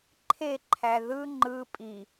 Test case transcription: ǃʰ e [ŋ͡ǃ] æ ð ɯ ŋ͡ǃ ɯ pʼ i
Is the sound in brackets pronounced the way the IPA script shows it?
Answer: no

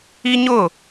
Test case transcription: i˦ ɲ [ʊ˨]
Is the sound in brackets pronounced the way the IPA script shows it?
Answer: no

